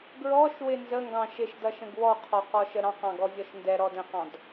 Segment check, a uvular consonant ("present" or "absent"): present